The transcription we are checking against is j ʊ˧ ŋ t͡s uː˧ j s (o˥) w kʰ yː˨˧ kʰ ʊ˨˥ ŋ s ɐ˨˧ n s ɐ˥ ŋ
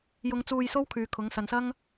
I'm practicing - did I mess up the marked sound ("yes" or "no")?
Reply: no